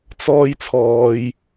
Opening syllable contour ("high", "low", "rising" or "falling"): high